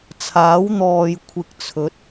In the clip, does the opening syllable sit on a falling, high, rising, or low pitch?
rising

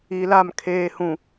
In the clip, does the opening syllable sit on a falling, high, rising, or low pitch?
low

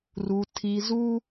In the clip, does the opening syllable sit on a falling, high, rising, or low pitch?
high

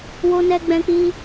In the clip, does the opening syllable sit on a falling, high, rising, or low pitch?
high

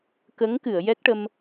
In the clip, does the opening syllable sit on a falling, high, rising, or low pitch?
rising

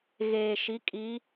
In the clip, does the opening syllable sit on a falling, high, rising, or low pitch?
low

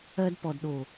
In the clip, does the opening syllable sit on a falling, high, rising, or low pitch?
high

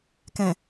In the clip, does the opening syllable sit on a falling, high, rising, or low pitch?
low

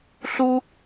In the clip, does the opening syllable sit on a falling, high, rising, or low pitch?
high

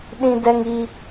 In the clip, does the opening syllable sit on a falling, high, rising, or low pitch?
high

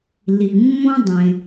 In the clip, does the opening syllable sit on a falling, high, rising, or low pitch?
low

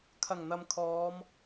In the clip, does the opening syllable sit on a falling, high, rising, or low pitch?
low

